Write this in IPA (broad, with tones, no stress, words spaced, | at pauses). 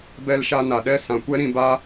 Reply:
bɛ˧lʃa˧ na˨ɗɛ˦ sã˨kʷɛ˦ɾĩ˧ ba˦